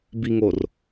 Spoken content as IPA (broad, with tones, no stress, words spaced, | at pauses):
bi˨ŋo˨r